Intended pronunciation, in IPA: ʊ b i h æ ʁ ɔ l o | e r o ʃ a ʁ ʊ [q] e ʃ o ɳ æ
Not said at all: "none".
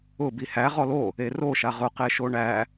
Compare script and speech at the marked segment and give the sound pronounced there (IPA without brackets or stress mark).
q